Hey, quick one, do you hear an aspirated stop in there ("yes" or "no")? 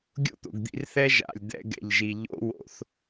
no